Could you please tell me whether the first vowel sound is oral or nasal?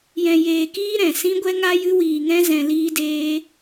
nasal